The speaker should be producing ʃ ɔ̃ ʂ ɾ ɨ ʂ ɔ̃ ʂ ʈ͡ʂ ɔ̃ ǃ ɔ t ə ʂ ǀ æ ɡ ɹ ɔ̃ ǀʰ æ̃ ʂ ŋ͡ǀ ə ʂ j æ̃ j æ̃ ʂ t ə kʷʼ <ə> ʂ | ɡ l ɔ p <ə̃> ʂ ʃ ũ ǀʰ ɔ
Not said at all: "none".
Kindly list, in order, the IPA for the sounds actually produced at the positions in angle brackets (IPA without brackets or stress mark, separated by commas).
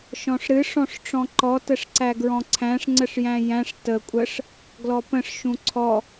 ə, ə̃